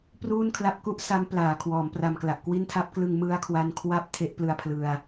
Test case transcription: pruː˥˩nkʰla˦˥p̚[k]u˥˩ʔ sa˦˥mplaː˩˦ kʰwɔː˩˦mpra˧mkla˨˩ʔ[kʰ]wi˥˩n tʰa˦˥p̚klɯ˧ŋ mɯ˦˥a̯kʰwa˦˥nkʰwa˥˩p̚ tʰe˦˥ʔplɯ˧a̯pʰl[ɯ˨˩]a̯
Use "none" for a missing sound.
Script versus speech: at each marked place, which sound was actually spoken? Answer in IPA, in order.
k, k, ɯ˧

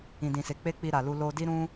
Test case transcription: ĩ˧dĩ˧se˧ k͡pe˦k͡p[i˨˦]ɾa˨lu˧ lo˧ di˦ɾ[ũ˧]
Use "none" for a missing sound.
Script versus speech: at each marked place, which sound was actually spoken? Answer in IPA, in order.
i˧, ũ˦

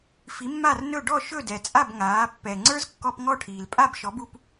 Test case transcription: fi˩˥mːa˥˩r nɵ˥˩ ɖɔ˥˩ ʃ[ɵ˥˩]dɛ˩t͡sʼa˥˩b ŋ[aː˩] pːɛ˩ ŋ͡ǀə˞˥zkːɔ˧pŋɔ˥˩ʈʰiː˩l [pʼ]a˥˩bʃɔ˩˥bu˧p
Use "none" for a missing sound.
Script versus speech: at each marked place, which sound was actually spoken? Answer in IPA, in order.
ɵ˥˩, aː˩˥, pʼ

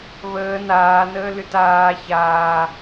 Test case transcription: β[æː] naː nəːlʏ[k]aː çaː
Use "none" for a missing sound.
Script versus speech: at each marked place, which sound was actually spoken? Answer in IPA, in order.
əː, t

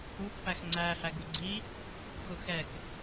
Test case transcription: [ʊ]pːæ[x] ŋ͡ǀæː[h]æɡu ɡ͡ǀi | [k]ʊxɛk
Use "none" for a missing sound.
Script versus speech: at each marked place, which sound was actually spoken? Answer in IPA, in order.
u, x, h, x

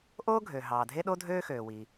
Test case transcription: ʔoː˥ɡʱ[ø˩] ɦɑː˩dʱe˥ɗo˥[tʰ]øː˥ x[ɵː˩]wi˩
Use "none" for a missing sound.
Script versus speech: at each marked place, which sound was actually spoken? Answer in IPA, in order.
ø˩, dʱ, øː˩

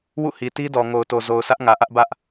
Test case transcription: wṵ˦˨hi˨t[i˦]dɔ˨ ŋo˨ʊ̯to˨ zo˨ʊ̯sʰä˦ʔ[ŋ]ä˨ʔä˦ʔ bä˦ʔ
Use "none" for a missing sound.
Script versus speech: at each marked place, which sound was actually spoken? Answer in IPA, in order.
i˦, ŋ

